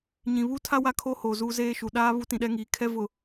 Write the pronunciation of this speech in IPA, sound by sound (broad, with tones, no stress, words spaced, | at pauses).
ɲĩ˨βuː˦tʰa˦ wa˦kʰo˦hoː˨ zuː˦zeː˦ʃu˨ ɗaː˦ βu˦tĩ˨ɗɛ˦ŋiː˨ kʰɛ˦vʊ˨